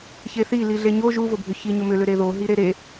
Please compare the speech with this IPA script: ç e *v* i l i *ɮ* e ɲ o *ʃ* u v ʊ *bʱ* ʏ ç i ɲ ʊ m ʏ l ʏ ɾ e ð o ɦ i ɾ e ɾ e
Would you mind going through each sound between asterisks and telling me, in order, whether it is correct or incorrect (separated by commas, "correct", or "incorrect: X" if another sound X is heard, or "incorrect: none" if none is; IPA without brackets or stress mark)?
incorrect: θ, correct, incorrect: ʒ, correct